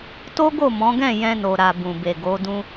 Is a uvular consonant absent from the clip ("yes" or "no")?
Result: yes